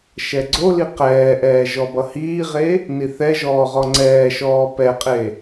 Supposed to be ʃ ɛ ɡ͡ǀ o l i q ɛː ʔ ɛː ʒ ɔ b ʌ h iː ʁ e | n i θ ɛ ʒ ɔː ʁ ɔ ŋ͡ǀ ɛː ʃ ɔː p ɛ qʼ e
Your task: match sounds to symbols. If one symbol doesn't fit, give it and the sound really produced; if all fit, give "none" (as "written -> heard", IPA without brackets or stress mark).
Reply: none